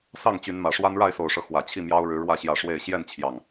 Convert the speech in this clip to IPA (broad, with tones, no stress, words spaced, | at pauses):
sɑ˥˨ŋt͡ɕy˨˦nmä˨˩ʂwa˦n ɻa˥˨ɪ̯so˨˩ʊ̯ʂɤ˦ xwä˨˩t͡ɕʰi˥˨mjɑ˦ʊ̯ ɻɻ̩˨˦ ɻwä˥˨ ɕjä˥˨ʂwe˥˨ɪ̯ ɕjɛ˥˨nt͡ɕʰjɑ˨˩ŋ